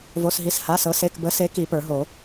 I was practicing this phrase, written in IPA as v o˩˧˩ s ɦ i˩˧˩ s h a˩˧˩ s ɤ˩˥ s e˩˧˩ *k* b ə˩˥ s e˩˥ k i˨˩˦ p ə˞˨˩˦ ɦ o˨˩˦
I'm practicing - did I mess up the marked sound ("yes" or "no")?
no